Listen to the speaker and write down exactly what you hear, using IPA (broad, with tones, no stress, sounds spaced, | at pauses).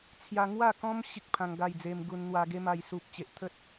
t͡sʰ j a˧ ŋ w a˥˧ k ɔ̃˦ m ɕ i˦ k̚ pʰ ã˧ ŋ ɡ a˥˧ j d͡z e˧ m ɡ u˧ n n̪ w a˧ ɡ e˦ m a˧ j s u˨ p̚ t͡ɕ e˨ ʔ t̪ʰ ə˦ t̚